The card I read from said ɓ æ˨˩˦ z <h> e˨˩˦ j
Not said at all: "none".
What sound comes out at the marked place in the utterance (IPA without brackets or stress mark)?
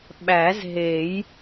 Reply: ɦ